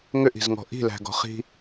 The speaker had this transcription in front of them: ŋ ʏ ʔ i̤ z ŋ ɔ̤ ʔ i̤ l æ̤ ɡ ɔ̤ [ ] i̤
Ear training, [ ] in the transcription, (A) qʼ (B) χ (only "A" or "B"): B